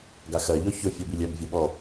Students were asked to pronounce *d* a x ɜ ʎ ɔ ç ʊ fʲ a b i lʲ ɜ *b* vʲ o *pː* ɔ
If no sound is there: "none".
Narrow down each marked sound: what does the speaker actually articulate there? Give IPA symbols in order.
ɡ, b, ɓ

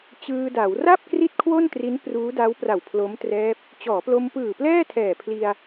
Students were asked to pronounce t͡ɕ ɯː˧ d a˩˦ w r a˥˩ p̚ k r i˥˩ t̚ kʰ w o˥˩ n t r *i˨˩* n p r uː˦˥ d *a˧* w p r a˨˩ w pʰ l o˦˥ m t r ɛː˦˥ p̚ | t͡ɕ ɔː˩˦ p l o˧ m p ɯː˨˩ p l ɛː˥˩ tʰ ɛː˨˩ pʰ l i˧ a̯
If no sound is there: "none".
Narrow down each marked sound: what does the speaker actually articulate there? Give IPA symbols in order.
i˦˥, a˦˥

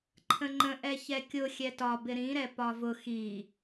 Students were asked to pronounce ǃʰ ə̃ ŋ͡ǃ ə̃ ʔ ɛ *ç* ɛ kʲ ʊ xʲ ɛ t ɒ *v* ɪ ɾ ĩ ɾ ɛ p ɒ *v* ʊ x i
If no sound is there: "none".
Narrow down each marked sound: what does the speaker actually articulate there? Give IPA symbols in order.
ç, b, v

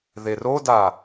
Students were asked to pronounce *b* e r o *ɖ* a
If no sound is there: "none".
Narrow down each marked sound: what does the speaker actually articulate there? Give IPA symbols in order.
ð, d

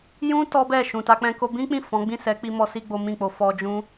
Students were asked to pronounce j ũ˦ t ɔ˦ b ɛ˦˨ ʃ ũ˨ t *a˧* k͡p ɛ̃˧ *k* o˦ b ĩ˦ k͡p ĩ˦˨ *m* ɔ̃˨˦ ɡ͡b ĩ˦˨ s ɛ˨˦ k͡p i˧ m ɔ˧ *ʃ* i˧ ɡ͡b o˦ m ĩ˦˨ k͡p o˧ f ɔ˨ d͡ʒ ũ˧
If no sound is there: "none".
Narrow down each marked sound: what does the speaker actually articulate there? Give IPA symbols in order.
a˧, k, f, s

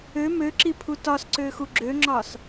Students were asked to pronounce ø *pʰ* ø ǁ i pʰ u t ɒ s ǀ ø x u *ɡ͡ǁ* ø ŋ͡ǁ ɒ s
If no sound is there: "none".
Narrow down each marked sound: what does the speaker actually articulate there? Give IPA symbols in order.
m, ɡ͡ǁ

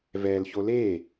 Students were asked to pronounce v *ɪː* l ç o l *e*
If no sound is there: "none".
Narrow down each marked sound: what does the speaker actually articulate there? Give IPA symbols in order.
ɛː, eː

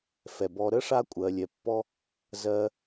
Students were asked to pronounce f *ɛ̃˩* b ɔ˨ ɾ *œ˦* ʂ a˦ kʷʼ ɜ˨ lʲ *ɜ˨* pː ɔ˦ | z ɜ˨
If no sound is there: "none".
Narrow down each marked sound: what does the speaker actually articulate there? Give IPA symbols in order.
ɛ˩, ə˦, ɛ˨

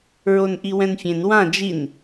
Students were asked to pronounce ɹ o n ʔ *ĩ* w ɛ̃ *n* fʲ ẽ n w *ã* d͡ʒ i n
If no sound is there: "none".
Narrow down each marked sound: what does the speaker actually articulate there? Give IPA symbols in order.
i, n, ã

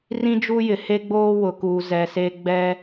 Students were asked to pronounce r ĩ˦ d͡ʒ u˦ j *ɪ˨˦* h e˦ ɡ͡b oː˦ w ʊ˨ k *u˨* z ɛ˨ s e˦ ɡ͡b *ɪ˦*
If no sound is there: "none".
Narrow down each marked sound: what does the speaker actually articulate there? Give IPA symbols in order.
ɪ˨, u˨, ɛ˦

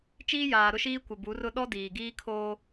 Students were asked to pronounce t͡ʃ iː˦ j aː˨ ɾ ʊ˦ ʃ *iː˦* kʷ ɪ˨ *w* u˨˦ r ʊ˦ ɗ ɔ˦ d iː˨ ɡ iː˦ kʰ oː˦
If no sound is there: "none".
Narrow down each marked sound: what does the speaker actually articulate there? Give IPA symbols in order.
iː˦, b

